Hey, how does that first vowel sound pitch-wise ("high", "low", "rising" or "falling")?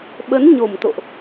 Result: rising